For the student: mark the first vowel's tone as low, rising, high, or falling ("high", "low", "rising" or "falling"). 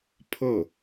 falling